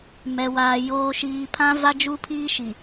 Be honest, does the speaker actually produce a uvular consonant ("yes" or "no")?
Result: no